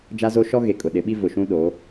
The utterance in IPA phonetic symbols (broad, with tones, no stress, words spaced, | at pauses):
d͡ʒa˦zo˦ ʃɔ˦ ɣe˨kʼʊ˨ɗɪ˨˦ɓi˦ vʊ˨ʃũ˦ ɗo˨˦